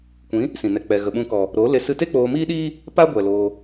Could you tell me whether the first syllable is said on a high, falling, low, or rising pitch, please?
rising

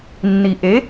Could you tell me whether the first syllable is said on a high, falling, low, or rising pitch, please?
low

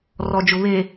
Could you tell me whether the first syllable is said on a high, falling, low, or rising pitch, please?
low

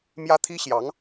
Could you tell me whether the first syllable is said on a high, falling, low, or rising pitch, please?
high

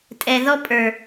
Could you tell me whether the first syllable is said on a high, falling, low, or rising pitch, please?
low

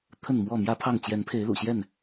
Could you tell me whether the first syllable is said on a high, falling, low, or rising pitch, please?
falling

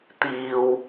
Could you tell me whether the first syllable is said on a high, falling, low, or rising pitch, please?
low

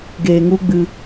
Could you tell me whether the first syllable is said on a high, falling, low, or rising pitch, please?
low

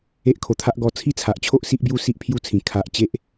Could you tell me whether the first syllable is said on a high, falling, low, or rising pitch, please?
high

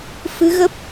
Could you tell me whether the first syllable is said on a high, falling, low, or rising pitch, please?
rising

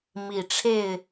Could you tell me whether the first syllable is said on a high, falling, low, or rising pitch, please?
low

